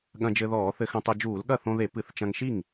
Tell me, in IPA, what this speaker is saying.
ɠɐ̃˧d͡ʒɘ˧ðɔː˧˩˧ θɘ˧xɐ̃˧tˤo˧ d͡ʒuː˧˩˧lɠɐ˥˩θõ˧ðe˧˩˧ pɨ˧˩˧θt͡ʃɐ̃˧ŋ ʃi˥˩ŋ

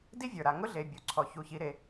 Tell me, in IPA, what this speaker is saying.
di˥vʲə˞˩ɾa˩ ŋʊ˥ɮe˩ bʲu˩ǀʰɔ˩ çu˩çi˩ɾe˩

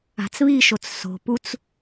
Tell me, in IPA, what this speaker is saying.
a̤t͡sβiʃot͡s so̤put͡s

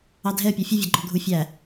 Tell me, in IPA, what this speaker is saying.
ɑdʱɛə̯pʲɔ fʲʊvʲʌ ɡ͡ǃɔɡʱufʲæ

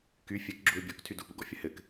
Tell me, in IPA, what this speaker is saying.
ky fʲɛk ɡ͡ǁuɪ̯bʲɔk tʰydupṵɡɔ̰ fʲəhɘk

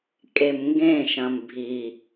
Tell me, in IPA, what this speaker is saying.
kʼemŋɡẽʃɐ̃m bʱi

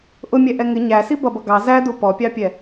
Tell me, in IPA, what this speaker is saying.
ʔʊmʲɛʔɛ ŋɪ ɲæsi bʌbʌ ɡɑ zædu pɔpʲɑpʲɛ

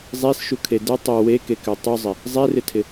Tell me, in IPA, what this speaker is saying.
zˤesʃukʰe dɘ tˤo wekekø tˤuzˤɪ | zˤerɪtʰɪ

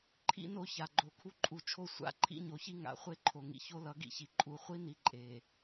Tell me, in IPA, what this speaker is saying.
ǃʰḭ˦no˦ça˨ ɡ͡ǃo˨ kʰu˦ǃʼu˨t͡ʃʰo˦˨ sʷa̰˦ ǃʰḭ˦ɲo˨çi˦ ŋa̰˨ χʷe˦ ǃʰo˨ŋḭ˨ ço˦lʌ˨˦ɡḭ˨çi˨ ǃʼu˨χʷi˦ni˨ ǃʼe˨

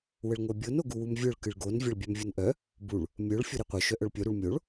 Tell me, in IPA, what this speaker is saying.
wəɭŋʷœbʲon oɡuwumvʲœɭ kɨɭɡon vʲaɭbʲœmvʲonʔœ | buɭ | mʲœɭ fʲoɾiqʷœ ʃœʔœɭpʲo ɾuɭmʲoɭ

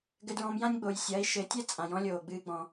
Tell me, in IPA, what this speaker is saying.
ɡɘ˧dɹɔ̃˧mjã˥nʲ ɡ͡bo˩jsʲɐː˩˧i̯ ʃɘ˩˧tʲɛ˥ t͡sʼã˩jɔ̃˧˥lʲoː˩ɡ͡bɨː˧ ɡ͡bɔ̃˩

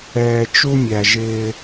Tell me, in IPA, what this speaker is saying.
ɛː˨t͡ʃu˦mʲæ˨ ʒɪː˦

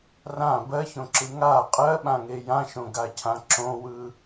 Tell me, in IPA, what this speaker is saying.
rã bɜçõǁɯ ŋa qʼɜɓãŋe jãʃõɡacʰã ǁõwɯ

